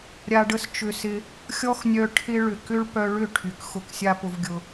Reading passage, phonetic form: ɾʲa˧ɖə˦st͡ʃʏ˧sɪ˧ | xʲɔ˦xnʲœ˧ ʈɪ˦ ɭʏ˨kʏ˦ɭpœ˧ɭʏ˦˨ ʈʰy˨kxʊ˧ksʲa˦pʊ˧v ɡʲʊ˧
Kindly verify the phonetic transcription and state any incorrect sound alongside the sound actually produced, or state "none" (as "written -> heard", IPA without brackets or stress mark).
ʈ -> ʈʰ